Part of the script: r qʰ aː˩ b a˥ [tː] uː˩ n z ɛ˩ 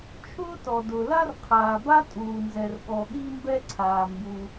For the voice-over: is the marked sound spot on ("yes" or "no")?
no